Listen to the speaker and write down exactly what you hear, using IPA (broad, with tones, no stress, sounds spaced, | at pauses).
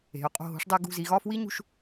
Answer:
e̤˩˧ ʊ̯ qʼ o̤˧˩ ɦ o̤˧ ʂ dˤ æ˧ ɡ ṳ˧˩ z i˩˧ ɣ ɒ˥˧ f w i˥ ɲ ṳ˧ ʃ